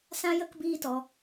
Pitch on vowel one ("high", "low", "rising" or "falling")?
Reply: high